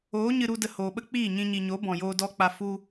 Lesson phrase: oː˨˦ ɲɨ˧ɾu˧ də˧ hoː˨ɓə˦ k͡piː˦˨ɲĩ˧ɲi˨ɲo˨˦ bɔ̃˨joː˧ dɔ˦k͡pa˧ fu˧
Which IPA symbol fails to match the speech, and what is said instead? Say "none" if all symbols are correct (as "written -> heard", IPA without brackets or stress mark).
none